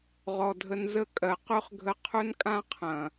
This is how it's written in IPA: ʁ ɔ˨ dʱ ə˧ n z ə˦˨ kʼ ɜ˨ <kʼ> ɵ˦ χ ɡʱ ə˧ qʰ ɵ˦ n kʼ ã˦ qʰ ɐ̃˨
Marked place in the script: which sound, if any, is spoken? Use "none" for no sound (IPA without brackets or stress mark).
q